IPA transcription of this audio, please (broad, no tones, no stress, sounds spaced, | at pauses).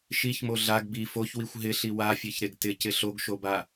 ʃ i ç m o ɮ a ɡ b i f o ç w i xʷ ɦ ɪ ɬ i w a fʲ e ç ɾ e ɡ t ɪ c ɪ ɬ o ɡ ʃ o b a